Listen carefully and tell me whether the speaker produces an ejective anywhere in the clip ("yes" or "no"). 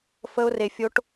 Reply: no